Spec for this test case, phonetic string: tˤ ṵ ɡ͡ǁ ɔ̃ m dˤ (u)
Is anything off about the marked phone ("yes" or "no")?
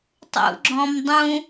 yes